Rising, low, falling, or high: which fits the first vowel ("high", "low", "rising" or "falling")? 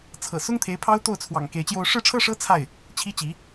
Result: low